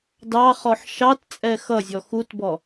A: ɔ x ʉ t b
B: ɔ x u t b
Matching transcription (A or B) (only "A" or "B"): B